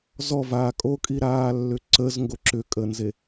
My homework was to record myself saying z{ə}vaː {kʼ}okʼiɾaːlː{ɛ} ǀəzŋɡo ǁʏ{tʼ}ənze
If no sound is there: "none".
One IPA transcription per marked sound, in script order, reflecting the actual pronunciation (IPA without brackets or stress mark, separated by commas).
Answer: ɔ, kʼ, ʏ, kʼ